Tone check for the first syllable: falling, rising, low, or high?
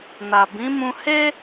low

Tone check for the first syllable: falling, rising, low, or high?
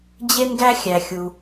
high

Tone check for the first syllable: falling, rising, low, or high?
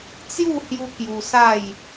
falling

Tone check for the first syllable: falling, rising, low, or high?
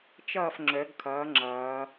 falling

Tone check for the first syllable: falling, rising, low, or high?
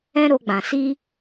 high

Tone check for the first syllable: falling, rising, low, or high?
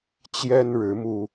high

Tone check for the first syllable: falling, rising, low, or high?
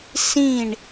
falling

